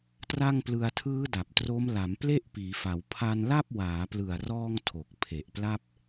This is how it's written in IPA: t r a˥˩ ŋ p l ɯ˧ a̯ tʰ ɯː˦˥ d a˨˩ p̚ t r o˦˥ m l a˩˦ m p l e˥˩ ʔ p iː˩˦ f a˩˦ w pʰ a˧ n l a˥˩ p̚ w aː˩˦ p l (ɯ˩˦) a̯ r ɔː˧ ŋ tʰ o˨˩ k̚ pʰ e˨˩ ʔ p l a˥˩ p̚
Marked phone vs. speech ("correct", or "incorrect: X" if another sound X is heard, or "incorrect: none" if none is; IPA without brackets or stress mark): incorrect: ɯ˨˩